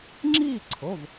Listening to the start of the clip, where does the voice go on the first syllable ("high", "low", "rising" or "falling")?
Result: falling